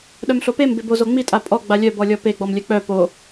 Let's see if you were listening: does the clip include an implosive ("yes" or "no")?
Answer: yes